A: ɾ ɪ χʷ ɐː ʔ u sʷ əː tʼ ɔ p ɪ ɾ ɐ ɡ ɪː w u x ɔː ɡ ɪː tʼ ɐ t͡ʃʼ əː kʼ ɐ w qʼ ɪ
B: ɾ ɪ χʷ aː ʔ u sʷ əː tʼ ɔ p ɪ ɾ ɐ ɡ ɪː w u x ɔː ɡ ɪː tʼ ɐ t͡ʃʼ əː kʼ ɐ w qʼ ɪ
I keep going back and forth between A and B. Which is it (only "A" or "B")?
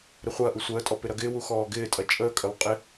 A